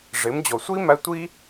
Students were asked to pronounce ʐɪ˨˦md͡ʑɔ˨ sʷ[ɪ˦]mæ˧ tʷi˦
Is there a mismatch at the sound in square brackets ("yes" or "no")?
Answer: yes